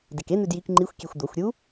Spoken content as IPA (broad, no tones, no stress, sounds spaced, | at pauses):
d e k e n̪ ʉ d j i k ŋ͡ǃ i xʷ kʲ e xʷ d̪ o xʷ ɾʲ u